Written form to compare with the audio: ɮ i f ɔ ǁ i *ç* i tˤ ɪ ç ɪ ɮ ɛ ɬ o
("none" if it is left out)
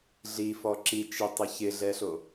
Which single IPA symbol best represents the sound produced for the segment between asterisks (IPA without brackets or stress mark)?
t͡ʃ